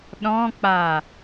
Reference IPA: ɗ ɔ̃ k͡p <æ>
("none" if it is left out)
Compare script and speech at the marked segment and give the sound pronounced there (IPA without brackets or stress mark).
a